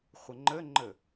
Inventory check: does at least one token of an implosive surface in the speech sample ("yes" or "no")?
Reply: no